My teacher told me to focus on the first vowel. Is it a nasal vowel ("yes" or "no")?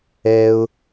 no